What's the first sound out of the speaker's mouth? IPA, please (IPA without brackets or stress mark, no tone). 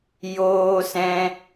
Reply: j